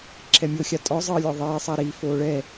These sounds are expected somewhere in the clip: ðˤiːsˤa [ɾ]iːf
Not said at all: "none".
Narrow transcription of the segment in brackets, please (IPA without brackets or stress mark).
ɾ